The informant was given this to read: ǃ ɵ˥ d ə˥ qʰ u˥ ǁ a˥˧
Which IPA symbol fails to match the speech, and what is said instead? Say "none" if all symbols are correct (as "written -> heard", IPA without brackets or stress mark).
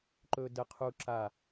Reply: none